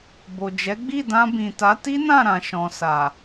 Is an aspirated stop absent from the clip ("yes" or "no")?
yes